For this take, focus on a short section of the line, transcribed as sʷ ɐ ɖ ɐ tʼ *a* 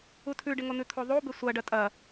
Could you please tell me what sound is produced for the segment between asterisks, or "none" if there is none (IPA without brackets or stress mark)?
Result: ɐ